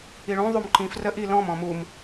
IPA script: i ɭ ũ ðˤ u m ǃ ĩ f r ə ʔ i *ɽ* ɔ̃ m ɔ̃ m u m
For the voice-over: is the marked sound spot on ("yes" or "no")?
no